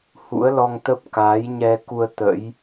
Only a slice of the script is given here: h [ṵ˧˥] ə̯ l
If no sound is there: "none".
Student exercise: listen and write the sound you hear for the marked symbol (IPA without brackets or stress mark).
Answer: ṵ˧˥